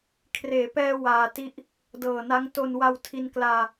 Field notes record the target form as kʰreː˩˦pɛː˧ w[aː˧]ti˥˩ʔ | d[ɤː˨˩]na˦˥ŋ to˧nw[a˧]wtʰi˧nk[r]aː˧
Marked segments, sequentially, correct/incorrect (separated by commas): correct, correct, correct, incorrect